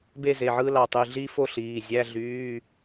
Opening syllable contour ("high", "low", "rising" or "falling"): falling